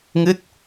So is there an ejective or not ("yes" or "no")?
no